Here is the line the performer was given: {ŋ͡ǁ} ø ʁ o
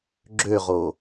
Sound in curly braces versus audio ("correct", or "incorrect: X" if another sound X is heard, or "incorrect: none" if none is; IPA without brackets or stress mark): incorrect: ɡ͡ǁ